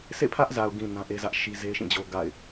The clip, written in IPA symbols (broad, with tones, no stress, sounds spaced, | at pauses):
sʰ ḛ˦˨ pʰ ä˦ ʔ z a˨ ʊ̯ ɡ ĩ˨ n ã˦ ʔ e˦ z ä˦ ʔ ʃ i˦ z e˦ ʃ ĩ˦˨ d͡ʑ o˦ ɡ a̰˦˨ ɪ̯